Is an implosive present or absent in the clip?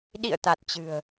present